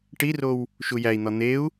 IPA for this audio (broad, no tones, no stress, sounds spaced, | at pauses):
ʈ i r o w | ʃ u j æ i̯ n̪ ɒ n̪ e u̯